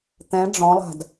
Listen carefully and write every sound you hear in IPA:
t̪ ɛ̃ ɖ͡ʐ ɔ̃ lˠ a̤ d

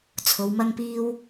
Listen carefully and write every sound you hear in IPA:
t͡sʰ o˨˧ w m ɐ˥ ŋ p iː˥ w

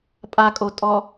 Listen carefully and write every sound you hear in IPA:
pʼ a kʼ o tʼ ɔ

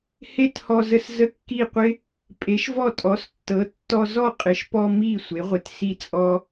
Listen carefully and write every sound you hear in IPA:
h e˥ t h ɔ˧ z ə˧ s z ə˥˩ kː i˥˩ qʷ ɪ˥ | pʼ e˩˥ ʃ v ɔ˥˩ tʼ ɔ˩˥ s tː ɤ˩˥ tː ɔ˧ z ɔ˥˩ qʼ ɪ˩˥ ʃ p ɔ˧ m i˥˩ sʷ e˩˥ ʁʷ ɪ˩˥ t s i˥˩ t͡sʼ ɔ˧

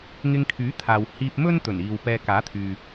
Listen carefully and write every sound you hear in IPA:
ŋ ɪ˧ ŋ kʰ yː˨˥ t̪ʰ aː˨ w h iː˧ p̚ m ɵ˥ n t̪ ɵ˨˩ n iː˨ w p ɛː˧ k aː˨˥ t̪ʰ yː˨

